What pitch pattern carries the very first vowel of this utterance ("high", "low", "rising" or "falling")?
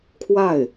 falling